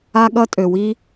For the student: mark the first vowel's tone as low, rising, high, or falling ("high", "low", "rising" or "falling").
high